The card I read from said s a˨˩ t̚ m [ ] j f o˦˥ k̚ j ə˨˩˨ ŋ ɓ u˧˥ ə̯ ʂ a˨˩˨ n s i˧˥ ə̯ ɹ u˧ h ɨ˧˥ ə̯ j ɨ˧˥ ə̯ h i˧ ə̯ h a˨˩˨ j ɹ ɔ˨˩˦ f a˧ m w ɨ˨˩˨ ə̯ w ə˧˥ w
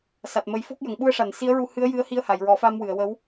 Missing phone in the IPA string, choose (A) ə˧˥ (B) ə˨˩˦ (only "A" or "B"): B